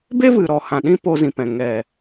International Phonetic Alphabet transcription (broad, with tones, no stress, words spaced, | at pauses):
be˦vɨ˨ ɾɔ˨hã˨ɗĩ˧ po˧zĩ˨pɛ̃˨ ŋɛ˨